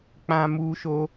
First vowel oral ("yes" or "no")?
no